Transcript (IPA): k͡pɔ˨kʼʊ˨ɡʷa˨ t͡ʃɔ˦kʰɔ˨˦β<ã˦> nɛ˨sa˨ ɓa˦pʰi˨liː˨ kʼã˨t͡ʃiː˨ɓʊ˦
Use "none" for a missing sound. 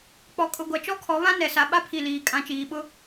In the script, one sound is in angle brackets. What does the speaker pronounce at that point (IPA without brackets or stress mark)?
ã˦